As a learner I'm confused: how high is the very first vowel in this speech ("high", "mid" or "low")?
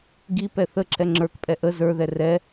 high